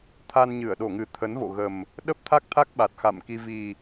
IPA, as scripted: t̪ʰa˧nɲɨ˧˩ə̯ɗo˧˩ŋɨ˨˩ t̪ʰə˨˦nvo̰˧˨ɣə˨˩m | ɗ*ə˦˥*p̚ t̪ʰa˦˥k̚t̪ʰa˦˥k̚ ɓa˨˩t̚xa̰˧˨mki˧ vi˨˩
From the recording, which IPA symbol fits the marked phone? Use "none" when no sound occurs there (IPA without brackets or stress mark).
ə˦˥